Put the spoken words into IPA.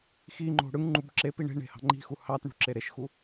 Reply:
x i ŋ͡ǃ o̤ ɽ ɯ ŋ ŋ͡ǃ u b ǁ e p i ɳ e̤ ɳ e̤ h ɑ̤ ŋ͡ǃ i̤ x u h ɑ t ɳ ṳ ǁ e ɾ e ʃ x u

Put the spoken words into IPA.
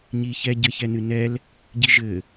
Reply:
ɲ i ç ɛ ɟ ɘ ç ɛ n ɨ n ɛ l | ɟ i ʒ ɘ

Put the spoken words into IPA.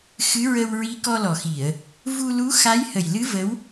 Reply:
x ɨ˧˥ ɹ ə˧ w ɹ i˧˥ k ɔ˧ l ɔ˨˩ x i˨˩˨ ə̯ | v u˧ l u˧˥ x a˧˥ j h ə˨˩ j l ɨ˧˥ v ə˧˥ w

